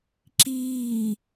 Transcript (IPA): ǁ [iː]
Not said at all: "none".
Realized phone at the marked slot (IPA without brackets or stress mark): iː